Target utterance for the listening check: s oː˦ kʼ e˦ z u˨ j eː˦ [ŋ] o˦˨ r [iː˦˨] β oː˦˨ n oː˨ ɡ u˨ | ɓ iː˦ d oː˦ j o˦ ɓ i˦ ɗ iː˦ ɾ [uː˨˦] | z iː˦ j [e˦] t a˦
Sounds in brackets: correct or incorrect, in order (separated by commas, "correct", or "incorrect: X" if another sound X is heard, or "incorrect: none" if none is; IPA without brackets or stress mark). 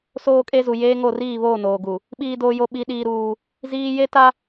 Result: correct, correct, incorrect: uː˦, correct